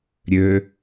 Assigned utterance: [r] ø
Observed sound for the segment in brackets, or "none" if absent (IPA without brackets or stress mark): ɾʲ